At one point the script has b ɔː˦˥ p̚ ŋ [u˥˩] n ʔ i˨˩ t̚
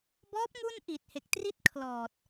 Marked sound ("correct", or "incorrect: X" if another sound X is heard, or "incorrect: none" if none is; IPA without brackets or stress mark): correct